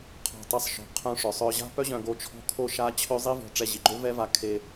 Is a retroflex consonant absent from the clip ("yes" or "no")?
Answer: no